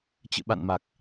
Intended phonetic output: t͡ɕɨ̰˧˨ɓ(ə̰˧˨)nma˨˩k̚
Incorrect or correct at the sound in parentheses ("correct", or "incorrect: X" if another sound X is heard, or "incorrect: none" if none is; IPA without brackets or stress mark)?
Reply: incorrect: a̰˧˨